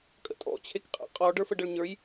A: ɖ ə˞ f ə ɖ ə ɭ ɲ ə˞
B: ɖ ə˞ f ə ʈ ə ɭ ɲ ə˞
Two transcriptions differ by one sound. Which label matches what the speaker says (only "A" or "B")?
A